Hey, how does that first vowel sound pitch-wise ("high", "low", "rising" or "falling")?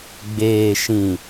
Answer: low